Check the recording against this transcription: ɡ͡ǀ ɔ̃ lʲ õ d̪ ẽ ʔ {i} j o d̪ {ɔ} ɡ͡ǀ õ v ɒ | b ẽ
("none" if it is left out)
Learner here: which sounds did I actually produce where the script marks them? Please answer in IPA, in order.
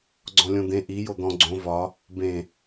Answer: i, ɔ̃

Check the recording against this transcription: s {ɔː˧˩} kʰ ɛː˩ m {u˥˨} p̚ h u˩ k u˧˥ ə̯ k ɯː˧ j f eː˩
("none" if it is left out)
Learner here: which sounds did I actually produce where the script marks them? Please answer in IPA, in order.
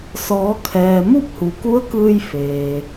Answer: ɔː˩˧, u˥˨

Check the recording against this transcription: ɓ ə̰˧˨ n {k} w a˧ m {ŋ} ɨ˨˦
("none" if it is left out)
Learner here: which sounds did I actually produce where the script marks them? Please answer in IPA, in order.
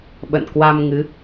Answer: k, ŋ

